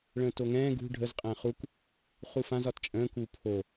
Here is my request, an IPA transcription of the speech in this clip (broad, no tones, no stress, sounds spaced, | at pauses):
ɭ ə̃ː t o ŋ ɛ̃ː ɡ ṳ ɖʱ ə z qʼ ɛ̃ː χ u k | χ u f ã z ɒ t t͡ʃʼ ə̃ː k uː pʰ o